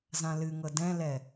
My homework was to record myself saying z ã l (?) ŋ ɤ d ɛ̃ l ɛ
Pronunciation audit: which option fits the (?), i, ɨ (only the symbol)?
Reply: ɨ